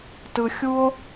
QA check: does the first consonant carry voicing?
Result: no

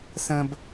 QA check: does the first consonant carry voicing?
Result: no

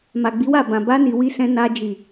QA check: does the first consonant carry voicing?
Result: yes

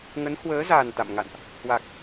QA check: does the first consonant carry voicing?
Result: yes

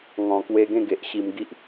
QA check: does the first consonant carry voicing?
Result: yes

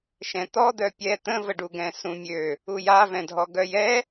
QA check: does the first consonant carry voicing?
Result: no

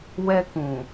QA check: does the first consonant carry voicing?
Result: yes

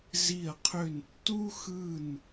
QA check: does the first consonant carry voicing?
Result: yes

